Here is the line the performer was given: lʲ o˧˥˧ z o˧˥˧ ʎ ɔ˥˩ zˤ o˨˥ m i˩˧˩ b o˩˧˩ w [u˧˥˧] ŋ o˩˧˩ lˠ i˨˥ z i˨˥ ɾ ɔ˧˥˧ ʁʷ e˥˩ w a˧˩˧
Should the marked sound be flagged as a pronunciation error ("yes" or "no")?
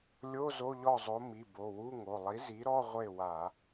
no